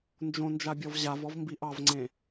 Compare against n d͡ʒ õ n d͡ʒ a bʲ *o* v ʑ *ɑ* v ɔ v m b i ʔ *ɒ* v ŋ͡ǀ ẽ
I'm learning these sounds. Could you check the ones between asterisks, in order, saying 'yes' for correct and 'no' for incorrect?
no, no, no

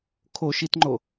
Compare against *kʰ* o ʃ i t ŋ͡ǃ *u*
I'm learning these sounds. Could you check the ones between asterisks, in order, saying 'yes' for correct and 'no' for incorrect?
yes, no

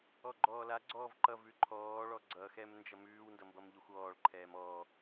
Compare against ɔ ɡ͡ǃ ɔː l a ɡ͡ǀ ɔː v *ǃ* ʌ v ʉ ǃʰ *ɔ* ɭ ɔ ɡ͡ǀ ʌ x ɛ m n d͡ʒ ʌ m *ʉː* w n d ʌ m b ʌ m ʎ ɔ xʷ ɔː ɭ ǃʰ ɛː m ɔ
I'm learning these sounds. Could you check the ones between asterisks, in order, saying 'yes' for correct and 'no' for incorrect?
yes, no, yes

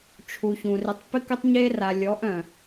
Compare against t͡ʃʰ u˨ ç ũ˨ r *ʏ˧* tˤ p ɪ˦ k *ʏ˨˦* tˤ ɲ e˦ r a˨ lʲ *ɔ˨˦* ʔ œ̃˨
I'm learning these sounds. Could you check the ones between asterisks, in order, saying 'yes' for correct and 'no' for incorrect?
no, no, yes

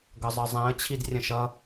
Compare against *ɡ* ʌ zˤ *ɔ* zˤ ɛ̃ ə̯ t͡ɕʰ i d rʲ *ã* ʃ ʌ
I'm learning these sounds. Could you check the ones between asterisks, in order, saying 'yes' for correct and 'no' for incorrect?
yes, no, no

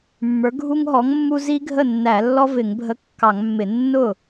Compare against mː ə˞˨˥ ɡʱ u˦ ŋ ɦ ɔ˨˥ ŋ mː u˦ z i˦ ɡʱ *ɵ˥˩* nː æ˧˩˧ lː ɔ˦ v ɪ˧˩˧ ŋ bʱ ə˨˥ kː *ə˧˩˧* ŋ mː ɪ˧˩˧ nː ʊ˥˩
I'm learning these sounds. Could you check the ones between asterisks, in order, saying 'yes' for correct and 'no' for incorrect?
no, no

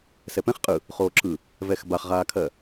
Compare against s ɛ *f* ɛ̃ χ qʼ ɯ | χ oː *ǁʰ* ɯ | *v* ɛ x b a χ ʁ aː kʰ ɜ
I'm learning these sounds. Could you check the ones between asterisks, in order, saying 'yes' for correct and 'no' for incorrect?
no, yes, yes

